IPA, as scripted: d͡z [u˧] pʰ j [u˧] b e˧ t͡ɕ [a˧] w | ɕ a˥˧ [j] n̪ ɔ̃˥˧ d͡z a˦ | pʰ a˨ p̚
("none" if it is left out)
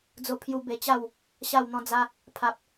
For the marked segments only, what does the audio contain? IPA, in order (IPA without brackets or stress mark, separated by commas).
o˧, u˧, a˥˧, w